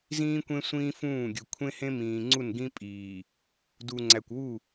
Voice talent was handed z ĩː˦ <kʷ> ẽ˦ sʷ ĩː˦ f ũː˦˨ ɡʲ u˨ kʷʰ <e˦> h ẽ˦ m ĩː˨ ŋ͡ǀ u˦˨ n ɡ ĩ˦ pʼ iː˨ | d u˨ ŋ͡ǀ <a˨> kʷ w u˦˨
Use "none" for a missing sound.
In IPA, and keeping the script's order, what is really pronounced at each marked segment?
kʷ, ẽ˦, æ˨

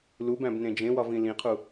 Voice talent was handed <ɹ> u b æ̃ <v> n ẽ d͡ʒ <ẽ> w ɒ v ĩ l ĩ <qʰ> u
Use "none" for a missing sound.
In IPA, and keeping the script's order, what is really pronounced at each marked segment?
l, b, ẽ, qʰ

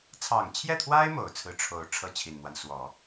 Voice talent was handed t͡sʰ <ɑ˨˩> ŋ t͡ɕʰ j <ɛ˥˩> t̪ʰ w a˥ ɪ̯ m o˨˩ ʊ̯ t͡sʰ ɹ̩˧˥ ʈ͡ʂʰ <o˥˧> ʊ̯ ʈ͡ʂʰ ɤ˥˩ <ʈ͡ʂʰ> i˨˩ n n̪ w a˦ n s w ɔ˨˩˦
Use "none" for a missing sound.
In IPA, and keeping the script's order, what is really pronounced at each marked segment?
ɑ˨˩, ɛ˥˩, o˥˧, t͡ɕʰ

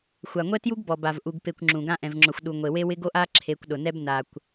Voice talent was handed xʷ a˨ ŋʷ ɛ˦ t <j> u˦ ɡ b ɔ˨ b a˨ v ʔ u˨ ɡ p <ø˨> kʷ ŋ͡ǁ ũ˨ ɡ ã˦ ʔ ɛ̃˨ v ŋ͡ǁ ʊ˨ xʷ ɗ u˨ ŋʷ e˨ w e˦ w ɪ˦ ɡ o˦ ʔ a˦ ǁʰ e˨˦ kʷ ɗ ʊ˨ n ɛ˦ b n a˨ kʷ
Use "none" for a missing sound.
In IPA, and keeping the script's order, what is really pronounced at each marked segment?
j, e˨

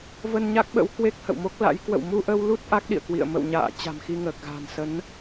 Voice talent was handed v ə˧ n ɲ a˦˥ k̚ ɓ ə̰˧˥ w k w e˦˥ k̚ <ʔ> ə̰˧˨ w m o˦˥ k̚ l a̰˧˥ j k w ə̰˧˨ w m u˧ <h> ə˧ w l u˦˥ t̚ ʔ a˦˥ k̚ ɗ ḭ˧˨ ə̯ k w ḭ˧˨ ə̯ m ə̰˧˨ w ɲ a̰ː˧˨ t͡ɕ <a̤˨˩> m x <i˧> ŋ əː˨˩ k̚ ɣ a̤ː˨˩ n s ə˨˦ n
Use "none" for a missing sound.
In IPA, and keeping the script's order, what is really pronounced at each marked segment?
h, ʔ, a̤˨˩, i˧

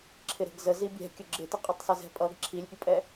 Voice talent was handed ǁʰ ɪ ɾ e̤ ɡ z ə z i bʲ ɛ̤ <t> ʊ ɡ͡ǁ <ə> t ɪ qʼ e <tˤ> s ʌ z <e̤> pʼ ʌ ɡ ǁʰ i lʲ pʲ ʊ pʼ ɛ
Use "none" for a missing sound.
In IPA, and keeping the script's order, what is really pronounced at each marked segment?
kʲ, ɪ, tˤ, ɛ̤

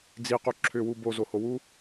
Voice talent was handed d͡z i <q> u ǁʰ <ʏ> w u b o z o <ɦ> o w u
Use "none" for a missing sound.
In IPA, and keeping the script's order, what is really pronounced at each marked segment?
q, ʏ, h

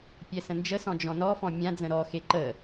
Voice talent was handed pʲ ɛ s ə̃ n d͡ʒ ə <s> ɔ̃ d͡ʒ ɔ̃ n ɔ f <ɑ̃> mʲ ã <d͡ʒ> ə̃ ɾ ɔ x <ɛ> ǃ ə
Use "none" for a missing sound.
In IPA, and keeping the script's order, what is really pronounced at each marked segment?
s, ɔ̃, d͡z, e

